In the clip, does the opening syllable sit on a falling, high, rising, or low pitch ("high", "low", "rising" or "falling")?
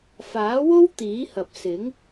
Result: rising